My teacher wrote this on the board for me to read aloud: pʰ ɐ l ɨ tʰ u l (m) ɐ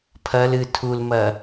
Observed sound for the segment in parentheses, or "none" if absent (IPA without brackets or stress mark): m